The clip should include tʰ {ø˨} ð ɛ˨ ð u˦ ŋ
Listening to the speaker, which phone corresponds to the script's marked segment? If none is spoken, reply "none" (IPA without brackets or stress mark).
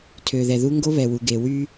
ø˨